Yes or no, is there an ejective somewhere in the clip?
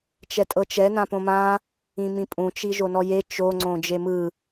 yes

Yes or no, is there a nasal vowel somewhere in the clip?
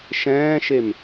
yes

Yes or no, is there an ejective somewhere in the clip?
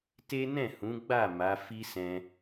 no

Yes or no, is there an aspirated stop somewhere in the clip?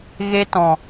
no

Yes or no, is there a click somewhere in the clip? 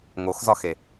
no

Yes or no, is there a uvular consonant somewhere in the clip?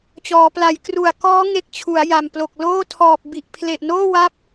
no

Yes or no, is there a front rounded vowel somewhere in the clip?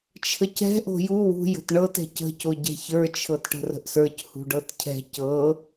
no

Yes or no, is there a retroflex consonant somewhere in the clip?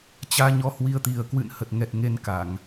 no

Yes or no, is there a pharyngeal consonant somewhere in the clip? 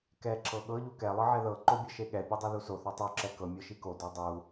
yes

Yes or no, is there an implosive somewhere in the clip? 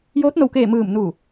no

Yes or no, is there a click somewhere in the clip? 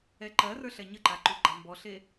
yes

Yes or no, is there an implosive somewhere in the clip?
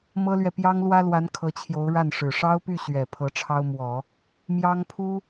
no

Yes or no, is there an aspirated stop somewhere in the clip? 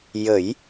no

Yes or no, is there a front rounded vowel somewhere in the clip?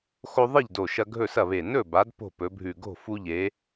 no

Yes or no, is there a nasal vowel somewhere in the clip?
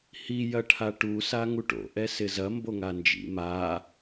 no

